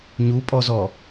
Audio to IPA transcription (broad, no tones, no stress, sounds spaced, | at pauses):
ɲ u pʼ ɔ z ɔ